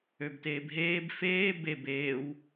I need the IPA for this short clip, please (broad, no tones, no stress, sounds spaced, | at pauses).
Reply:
ø b t eː b ɦ eː b f eː b e b eː w